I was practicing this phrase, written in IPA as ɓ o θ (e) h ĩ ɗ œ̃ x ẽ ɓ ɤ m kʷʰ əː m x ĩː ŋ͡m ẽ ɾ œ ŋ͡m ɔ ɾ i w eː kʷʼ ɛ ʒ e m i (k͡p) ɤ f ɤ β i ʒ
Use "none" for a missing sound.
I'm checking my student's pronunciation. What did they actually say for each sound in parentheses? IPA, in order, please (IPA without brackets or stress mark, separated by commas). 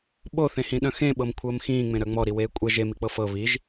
ẽ, k͡p